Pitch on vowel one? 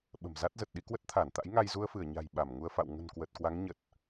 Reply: low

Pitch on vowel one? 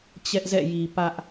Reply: high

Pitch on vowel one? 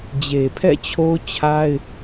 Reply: low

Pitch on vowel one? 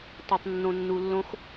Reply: low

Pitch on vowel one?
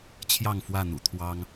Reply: falling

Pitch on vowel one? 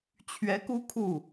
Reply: rising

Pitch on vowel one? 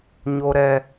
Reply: high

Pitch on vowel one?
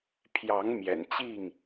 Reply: rising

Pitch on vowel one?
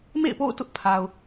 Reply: falling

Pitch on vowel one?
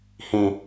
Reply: high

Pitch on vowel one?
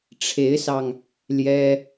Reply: rising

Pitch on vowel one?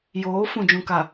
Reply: rising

